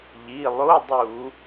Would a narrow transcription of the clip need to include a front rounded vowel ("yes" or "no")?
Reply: no